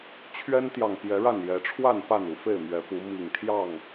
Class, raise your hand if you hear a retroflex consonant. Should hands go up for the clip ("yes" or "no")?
yes